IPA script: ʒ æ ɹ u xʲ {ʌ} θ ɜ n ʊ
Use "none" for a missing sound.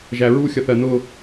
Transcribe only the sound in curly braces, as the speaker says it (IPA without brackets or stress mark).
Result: ʌ